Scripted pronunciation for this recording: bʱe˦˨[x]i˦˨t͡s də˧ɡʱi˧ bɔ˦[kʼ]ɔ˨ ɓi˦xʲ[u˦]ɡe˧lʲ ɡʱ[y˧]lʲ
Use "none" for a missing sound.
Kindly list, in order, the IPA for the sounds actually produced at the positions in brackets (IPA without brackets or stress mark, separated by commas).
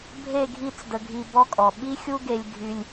ɡʱ, kʼ, u˦, y˧